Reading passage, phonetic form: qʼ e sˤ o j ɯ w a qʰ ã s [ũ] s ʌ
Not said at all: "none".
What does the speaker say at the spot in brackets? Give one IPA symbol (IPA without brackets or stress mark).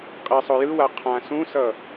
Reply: ũ